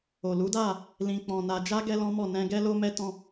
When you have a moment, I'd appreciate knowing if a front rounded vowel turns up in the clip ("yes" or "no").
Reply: no